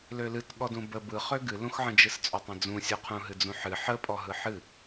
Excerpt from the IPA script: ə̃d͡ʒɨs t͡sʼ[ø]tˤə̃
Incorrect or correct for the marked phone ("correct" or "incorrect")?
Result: correct